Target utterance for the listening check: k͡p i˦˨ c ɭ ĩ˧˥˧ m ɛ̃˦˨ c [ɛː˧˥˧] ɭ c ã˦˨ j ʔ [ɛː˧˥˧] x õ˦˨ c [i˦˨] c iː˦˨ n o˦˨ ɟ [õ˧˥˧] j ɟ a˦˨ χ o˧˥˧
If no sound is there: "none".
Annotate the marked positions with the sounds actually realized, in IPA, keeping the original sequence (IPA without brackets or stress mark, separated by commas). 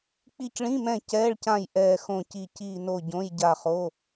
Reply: ɛː˧˥˧, ɛː˦˨, i˦˨, õ˧˥˧